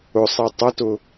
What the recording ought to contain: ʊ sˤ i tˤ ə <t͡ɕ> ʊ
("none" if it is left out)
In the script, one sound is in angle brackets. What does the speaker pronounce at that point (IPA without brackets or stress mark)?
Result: t